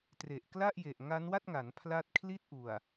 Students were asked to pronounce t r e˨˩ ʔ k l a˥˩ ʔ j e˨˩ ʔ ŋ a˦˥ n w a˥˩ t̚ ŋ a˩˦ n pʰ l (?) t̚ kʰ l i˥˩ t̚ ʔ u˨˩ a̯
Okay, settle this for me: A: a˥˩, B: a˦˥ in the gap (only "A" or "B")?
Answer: B